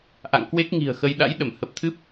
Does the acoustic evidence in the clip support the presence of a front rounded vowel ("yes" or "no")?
no